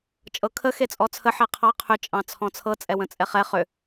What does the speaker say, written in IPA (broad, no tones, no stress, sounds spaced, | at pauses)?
t͡ʃʼ ɤ kʰ ə x e t͡sʼ ɔ t͡sʰ ə ħ ɛ qʰ ɑ qʰ ʏ t͡ʃʼ ɑ̃ t͡sʰ ɔ̃ t͡sʰ ɤ t͡sʼ ɛ w ə̃ t͡sʼ ɛ χ ɛ χ ʏ